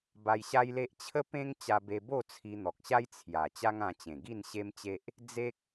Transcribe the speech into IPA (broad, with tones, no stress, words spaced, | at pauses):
ba˧jɕa˦jle˦ʔ t͡ɕʰə˦pẽ˦ŋ t͡ɕa˧be˧bo˥˧ t͡sʰi˧n̪ɔ˨k̚ɕa˦j t͡sʰja˨˩ t͡ɕa˦ŋã˧t͡ɕẽ˨˩ ɡi˥˧nɕe˦mt͡ɕe˦ʔ | d͡ze˦k̚